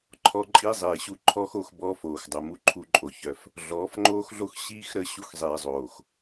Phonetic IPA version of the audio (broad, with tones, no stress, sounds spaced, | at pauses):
ǃʰ ɔ˦ ǃʼ i˦ zˤ iː˨ ɕ u˦ ǃʰ ɔː˦ x o˦˨ x b ɔː˦ f oː˨ x dˤ o˨ m u˦ ǃʰ u˦ ǃʼ o˨ ç œ˦ f | ɮ ɔː˨˦ f ŋ͡ǃ oː˦ x ɮ o˦ x ɕ iː˦ x ɾ ə˦˨ ɕ u˦ x zˤ iː˨ zˤ oː˨ x